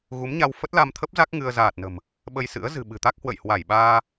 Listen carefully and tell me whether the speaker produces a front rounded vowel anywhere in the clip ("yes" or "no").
no